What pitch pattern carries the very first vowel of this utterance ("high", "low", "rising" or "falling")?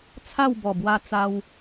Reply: falling